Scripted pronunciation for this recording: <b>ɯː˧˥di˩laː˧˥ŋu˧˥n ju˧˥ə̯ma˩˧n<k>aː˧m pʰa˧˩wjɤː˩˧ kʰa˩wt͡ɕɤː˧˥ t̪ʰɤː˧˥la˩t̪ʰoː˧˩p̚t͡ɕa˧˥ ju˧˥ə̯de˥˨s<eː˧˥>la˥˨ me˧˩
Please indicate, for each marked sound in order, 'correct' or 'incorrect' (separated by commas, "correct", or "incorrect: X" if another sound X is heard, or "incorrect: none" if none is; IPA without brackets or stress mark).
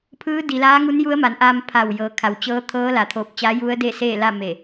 incorrect: pʰ, incorrect: ʔ, incorrect: eː˥˨